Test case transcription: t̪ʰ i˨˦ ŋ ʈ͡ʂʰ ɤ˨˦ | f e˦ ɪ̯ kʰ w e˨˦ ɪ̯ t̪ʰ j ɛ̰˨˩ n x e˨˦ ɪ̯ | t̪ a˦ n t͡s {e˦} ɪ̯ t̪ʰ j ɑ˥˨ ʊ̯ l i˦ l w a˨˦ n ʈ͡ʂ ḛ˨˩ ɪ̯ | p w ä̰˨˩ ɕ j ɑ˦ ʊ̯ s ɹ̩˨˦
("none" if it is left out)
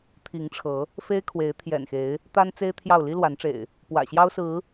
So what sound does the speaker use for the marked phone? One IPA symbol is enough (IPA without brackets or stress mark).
e˦